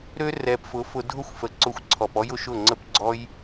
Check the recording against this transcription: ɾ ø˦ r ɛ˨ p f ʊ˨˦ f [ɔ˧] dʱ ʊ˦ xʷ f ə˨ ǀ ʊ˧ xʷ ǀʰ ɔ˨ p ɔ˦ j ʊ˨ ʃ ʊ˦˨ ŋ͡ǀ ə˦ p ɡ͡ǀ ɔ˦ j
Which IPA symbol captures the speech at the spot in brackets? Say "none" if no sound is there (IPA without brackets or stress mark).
ʊ˧